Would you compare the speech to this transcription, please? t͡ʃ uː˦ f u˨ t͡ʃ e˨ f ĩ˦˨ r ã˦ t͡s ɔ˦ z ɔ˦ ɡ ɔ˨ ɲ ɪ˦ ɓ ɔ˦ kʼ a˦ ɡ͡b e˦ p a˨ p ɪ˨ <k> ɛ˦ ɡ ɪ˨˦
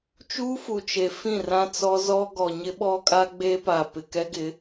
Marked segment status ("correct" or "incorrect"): correct